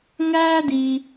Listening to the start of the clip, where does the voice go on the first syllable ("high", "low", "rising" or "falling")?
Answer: high